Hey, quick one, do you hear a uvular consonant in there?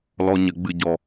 no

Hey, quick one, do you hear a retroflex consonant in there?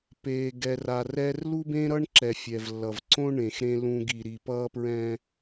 yes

